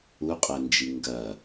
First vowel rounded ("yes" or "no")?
yes